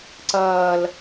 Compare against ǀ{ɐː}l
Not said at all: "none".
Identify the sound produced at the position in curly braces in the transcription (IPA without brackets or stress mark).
ɐː